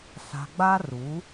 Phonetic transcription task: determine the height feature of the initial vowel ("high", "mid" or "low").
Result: low